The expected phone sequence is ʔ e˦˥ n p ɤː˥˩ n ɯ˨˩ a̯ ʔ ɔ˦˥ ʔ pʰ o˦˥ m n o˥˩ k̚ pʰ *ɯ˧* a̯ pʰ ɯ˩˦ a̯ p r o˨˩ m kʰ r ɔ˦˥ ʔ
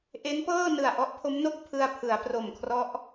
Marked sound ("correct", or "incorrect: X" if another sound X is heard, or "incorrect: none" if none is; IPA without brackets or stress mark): correct